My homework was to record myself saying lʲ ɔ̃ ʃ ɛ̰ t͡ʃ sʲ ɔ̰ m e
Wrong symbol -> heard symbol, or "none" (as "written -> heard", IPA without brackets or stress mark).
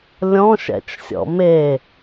none